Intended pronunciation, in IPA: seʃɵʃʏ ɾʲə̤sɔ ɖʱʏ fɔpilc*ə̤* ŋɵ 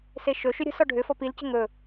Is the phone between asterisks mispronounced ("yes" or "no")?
no